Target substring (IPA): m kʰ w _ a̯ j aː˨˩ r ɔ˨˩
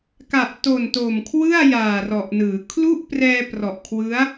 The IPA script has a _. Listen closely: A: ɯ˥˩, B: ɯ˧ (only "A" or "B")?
A